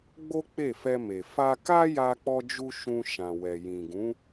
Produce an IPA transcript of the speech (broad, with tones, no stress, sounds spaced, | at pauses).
ɡ͡b o˦ k͡p e˦˨ f ɛ˧ m e˨ f a˧ k a˦ j a˦ k͡p ɔ˦ d͡ʒ u˦ ʃ ũ˧ ʃ ã˨ w ɛ˨ j ĩ˨ ɡ ũ˨˦